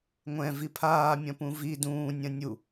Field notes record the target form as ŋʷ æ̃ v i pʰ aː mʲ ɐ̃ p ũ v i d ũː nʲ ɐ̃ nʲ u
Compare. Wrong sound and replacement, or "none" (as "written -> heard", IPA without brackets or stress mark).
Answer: æ̃ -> ɛ̃